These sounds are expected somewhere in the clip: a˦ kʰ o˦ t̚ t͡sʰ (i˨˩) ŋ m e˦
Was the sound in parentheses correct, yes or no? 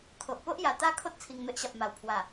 yes